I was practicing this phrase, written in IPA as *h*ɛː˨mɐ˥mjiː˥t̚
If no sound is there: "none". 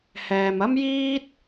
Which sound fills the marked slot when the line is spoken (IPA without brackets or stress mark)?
h